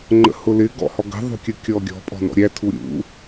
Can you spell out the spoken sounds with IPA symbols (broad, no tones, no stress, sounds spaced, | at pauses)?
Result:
ŋ͡ǃ ə̰ h ʊ l ɪ ɡ ɔ̰ h ɔ ɡ ə̤ ðˤ ṳ kʲ ə kʲ ɔ ɡʲ ɔ̤ pʼ ɔ̤ n ɔ̰ ɾʲ æ tʰ u ɾʲ ṵ